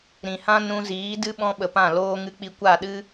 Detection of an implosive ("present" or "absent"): present